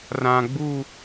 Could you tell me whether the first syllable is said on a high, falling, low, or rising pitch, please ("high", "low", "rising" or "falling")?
low